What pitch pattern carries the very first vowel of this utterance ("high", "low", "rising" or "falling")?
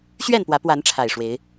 falling